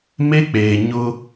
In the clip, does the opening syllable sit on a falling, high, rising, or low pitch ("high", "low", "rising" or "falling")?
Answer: high